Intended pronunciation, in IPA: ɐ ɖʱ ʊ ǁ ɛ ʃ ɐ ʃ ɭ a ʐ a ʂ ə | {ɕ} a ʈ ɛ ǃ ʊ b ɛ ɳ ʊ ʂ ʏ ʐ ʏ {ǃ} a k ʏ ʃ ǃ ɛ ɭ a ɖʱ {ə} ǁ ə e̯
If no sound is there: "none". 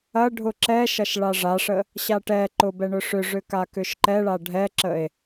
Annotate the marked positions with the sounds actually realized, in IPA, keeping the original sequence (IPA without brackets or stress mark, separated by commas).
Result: ɕ, k, ɛ